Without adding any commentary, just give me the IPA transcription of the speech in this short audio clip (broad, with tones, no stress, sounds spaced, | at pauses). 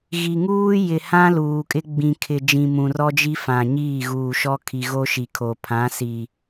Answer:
ɣ i˨ ŋ uː˦ j ɪ˨ h ã˦ l uː˨ kʼ ɪ˦ ɡ͡b ĩ˨ kʰ ɪ˨ d͡ʒ ĩ˨ m ũ˨ r ɔ˦ d͡ʒ i˦ f ã˨ ɲ iː˦˨ ɣ uː˨ ʃ ɔ˦ kʰ i˨ ɣ o˦ ʃ i˨ kʰ o˨ pʰ ã˨˦ s i˨